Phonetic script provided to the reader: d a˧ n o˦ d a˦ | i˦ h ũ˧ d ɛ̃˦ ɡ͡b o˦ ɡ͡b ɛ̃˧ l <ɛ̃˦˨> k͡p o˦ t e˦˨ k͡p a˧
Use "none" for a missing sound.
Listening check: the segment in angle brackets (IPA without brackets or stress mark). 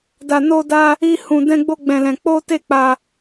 ɛ̃˧